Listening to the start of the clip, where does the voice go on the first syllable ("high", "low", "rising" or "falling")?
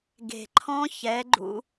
low